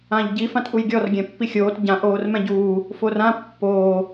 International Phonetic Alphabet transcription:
ãʎɟi fãtʔujɡʲɔr ɡʲɛ̃pːixʲoːt ɟã ʔoːrmɛ̃ɟuː | forã pːoː

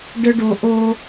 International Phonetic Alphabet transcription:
ɖə˦ɖo˨ ʔo˦

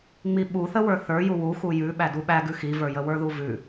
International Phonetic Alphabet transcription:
ŋ͡miɓuθəwə˞ θə˞ju wu xujʉɓæ duɓæ ɡʉxivə˞jə wə˞ðuvʉ

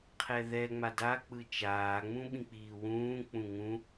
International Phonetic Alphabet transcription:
qʰɛðɛ ŋ͡mada k͡pɯt͡ʃaː ŋ͡mũɓĩk͡piːwũː k͡pũŋũ

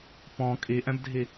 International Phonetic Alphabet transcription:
pɔ̃ kʼiʔɛ̃bdʱi

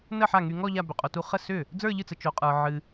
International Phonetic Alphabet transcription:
nə˥˩ħa˥˩ŋy˧ŋɔ˥˧ ʎa˥˧bʏ˧qʼo˧tu˥˧ χə˥˩sʏ˥˩ | d͡zə˞˥˧ʎɨ˥˩t͡sə˧ t͡ʃo˧qʼə˞˧ ʕɨ˧

